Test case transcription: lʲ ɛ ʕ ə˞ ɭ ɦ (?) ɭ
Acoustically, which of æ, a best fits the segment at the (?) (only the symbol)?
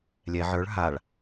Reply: a